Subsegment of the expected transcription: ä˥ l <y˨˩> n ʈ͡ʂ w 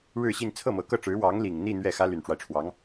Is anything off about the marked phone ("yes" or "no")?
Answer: no